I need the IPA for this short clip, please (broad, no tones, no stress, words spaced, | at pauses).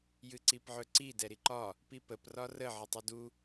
jɨǀipʕɵǀi dɛɾiǃɒ | pipəp rɒrə ʕɨtˤudu